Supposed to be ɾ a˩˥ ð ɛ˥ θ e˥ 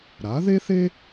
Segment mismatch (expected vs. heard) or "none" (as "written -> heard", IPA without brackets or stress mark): ɛ˥ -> e˥